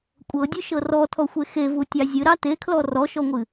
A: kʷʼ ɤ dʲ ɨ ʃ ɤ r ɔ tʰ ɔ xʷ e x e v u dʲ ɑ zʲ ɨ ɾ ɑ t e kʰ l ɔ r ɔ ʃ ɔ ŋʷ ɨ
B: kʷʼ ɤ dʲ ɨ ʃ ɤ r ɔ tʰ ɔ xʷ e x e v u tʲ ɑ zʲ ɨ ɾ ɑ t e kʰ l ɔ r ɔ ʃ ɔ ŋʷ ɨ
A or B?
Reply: B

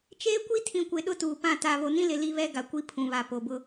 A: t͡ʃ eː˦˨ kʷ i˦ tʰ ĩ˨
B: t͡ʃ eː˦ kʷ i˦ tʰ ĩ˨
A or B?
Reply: B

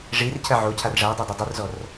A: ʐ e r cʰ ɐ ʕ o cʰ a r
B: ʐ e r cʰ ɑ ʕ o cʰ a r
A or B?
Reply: A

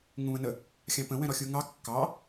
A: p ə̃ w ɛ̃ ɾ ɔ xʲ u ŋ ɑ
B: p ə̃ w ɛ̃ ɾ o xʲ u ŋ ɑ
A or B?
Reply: A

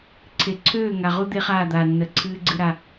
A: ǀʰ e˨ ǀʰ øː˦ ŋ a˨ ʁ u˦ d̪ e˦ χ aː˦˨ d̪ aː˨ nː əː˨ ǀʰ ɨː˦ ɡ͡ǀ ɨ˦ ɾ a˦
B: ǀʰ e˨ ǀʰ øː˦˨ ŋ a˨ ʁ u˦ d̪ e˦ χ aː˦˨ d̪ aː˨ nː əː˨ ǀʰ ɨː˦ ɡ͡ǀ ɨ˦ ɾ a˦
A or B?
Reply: B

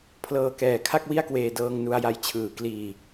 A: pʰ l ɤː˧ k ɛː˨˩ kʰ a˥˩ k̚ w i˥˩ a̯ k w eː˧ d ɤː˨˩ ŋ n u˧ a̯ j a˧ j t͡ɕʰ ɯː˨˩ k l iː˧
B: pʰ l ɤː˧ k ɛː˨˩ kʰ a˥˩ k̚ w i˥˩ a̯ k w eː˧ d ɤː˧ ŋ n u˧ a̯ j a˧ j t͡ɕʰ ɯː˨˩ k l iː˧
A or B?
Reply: B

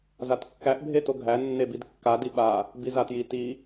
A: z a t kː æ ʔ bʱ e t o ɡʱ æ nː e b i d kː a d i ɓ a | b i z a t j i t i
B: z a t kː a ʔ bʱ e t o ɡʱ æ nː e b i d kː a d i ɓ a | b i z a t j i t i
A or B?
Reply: A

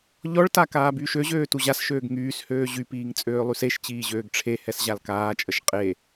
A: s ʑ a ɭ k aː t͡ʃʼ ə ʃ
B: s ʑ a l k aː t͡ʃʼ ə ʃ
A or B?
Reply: B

